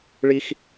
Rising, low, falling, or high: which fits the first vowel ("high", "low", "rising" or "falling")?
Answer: high